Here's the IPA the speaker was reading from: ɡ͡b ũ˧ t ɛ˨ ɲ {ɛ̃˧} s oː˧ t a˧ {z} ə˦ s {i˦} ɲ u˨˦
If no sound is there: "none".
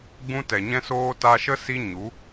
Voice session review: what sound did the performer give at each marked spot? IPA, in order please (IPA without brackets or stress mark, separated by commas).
ɛ̃˧, ʃ, i˦